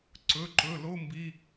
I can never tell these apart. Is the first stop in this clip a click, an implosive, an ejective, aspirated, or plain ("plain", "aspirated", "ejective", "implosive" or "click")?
click